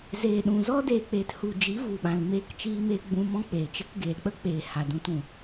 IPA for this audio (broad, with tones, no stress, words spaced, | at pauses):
zeː˨ɗũ˨zɔ˦ deː˨k͡peː˨t hu˨d͡ʒi˨˦ vu˨ɓã˨l meː˧kt͡ʃiː˧meː˧ ɡ͡bũ˧mɔ̃˦k͡peː˨t͡ʃə˦k ɡeː˨lk͡pə˦ k͡peː˨ha˨dũ˧t ũ˨